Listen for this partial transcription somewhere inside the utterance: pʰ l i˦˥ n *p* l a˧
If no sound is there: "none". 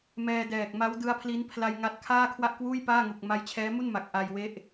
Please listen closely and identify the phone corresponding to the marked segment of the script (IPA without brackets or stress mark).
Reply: pʰ